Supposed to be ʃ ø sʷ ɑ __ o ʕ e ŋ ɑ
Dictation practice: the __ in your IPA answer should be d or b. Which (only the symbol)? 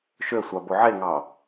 b